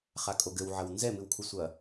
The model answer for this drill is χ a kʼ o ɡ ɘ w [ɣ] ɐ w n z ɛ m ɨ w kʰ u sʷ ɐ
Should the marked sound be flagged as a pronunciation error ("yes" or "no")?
yes